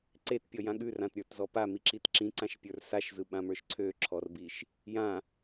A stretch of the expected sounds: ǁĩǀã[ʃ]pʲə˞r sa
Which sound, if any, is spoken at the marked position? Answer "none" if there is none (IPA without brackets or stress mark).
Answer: ʃ